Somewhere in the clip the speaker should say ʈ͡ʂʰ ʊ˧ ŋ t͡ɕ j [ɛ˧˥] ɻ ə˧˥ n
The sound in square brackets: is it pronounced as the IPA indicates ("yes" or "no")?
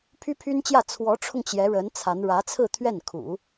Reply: yes